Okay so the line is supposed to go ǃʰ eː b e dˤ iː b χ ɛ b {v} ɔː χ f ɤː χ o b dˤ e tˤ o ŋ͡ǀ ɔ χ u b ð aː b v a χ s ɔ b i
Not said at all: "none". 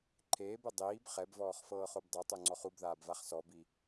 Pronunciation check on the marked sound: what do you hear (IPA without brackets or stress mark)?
v